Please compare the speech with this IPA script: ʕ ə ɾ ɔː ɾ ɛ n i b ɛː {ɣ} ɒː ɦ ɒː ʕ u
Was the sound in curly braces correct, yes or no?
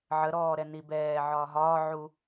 no